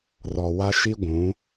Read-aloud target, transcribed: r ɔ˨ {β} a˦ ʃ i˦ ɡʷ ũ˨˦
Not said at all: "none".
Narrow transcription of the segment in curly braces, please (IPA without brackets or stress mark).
w